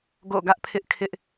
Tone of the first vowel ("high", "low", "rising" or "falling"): falling